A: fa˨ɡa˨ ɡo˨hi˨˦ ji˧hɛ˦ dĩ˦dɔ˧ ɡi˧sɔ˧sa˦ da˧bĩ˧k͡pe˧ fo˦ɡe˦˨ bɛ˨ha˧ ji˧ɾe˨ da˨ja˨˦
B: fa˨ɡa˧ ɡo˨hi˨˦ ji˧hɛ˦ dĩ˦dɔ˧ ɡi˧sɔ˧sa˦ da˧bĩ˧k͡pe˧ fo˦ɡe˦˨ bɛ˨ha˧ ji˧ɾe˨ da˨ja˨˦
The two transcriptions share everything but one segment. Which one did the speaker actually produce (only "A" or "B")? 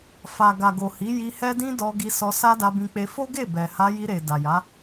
A